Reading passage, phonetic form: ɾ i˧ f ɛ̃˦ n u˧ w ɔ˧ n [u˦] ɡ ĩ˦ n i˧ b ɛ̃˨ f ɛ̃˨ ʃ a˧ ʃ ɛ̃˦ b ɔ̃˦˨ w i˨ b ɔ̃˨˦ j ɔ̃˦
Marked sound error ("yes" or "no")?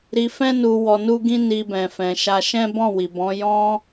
no